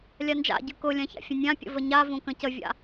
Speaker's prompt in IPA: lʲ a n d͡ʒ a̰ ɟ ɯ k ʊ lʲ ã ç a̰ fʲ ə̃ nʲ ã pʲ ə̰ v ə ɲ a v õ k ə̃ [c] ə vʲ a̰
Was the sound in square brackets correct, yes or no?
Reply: yes